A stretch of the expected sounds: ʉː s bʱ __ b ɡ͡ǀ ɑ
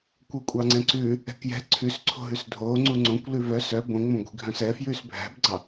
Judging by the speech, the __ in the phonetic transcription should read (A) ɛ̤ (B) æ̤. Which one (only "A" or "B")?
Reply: B